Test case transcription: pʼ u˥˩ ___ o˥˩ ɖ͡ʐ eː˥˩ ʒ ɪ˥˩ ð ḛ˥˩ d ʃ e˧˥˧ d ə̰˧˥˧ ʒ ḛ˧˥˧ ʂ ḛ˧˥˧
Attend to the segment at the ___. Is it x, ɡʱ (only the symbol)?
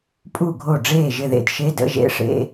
ɡʱ